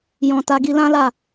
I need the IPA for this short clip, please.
j ɔ̃˨ t a˧ ɡ i˧ l ã˦ l a˦˨

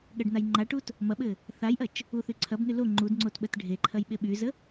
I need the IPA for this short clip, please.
ɠ ɐ ɖ n a j ŋ͡ǃ a ʈ u t | m ɐ ɓ ɘ | θ a j ʔ ɐ t͡ʃ | u θ y ǀʰ ɐ b n y l o ŋ͡ǃ u d ŋ͡ǀ o t ɓ ə t ɖʱ e ǃʰ ɐ j ɓ e ɓ y z ə

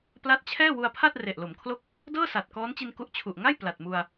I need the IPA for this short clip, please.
p l a˦˥ t̚ t͡ɕʰ ɛː˥˩ w u˧ a̯ pʰ a˥˩ t̚ r e˨˩ ʔ l o˩˦ m kʰ l o˥˩ k̚ | d ɤː˥˩ s a˨˩ t̚ k ɔː˦˥ n t͡ɕ i˧ n k u˦˥ ʔ t͡ɕʰ u˨˩ ʔ ŋ a˥˩ j p l a˨˩ t̚ m u˧ a̯

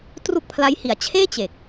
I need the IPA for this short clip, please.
t r u˥˩ k̚ pʰ l a˦˥ j h i˨˩ a̯ t͡ɕʰ eː˥˩ t͡ɕ e˨˩ k̚

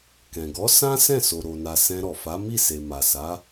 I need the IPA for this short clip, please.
k ɛ̃˨ ɡ ɔ˨˦ s ã˦ s ɛ̃˦˨ s o˨ ɾ o˨ n a˨ s ɛ̃˧ ɾ ɔ˨ f a˨˦ m i˦˨ s e˨ m a˨ s a˨˦

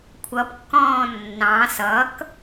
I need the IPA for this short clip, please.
kʷʰ ʌ p kː ɔ̃ː nː ɑ̃ s ʌ k

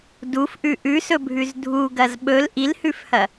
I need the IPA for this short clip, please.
d u f ʔ ʉ ʔ ʉ s ɵ bʱ ʉ z dʱ u ɡ ɐ z ɓ ɵ l ʔ i l h ʉ f h ɐ

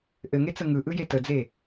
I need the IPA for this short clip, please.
ʔ ɘ ŋ e t͡s ə ŋ ɯ ʔ ɯ j e t ə d͡z e

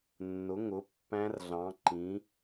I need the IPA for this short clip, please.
nː ʊ˩˥ ŋ ʊ˩˥ pː æ̃˧˥ r ɮ ɑ̃˩˥ ǃ ĩ˩˥

